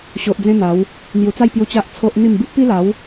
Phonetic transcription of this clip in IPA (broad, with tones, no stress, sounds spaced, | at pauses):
ɕ o˨ ʔ d͡z ẽ˦ n̪ a˨˦ w | n̪ j u˨˩ t͡s a˥˧ j p j u˧ t͡ɕ a˦ ʔ t͡sʰ o˦ ʔ n̪ i˥˧ m b i˦ ʔ p i˦ l a˨˦ w